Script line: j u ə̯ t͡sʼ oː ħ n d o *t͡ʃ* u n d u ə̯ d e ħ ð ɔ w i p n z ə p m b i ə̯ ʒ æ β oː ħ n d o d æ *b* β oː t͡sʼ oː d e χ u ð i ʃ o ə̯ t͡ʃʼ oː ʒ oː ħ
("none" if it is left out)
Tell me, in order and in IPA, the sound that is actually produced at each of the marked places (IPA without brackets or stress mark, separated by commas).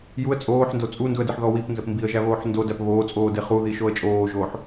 t͡sʼ, p